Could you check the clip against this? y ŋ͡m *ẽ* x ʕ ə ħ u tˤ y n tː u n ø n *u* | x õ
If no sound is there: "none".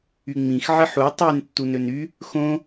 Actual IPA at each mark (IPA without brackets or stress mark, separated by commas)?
ĩ, y